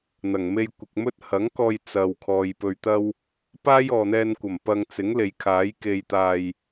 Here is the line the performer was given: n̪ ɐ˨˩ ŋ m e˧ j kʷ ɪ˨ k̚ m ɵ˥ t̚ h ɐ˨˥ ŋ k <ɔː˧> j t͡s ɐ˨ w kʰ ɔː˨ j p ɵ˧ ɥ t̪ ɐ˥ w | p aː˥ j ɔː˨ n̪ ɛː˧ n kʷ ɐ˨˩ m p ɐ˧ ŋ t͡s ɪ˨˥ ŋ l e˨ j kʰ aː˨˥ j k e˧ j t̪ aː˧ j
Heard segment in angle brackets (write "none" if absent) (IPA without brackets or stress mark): ɔː˧